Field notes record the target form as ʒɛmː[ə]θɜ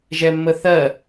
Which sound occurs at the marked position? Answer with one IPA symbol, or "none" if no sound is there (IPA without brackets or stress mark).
ə